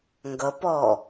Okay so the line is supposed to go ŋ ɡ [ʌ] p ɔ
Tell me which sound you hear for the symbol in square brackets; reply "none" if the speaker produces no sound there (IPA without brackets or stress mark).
ʌ